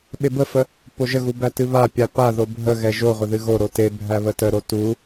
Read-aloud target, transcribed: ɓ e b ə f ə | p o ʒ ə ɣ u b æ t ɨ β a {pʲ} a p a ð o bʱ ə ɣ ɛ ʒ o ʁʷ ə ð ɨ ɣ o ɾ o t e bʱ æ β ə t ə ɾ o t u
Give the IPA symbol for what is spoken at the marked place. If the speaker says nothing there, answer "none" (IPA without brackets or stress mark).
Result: pʲ